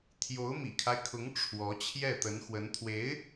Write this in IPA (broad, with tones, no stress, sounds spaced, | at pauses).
t̪ʰ j o˧˥ ʊ̯ m ḭ˨˩ kʰ a˦ ɪ̯ kʰ ʊ˧˥ ŋ ʈ͡ʂʰ w ɔ˧˥ t͡ɕʰ j ɛ˥˩ t̪ ə˧˥ n x w ə˧˥ n t̪ʰ w e˧˥ ɪ̯